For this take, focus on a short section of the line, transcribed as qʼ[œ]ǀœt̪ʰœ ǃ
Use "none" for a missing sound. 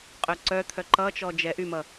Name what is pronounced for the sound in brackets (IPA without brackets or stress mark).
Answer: œ